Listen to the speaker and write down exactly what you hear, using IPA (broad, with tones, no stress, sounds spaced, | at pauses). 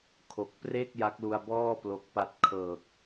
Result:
kʰ o˨˩ k̚ p r e˥˩ k̚ j a˦˥ k̚ l u˧ a̯ b ɔː˥˩ p l o˦˥ k̚ p a˥˩ t̚ kʰ ɤː˨˩ k̚